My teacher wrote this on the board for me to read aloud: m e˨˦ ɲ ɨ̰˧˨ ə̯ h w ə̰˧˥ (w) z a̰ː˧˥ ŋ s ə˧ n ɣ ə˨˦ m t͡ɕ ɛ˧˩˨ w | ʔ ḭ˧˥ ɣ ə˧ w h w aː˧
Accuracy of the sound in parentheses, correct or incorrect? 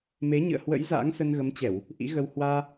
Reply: incorrect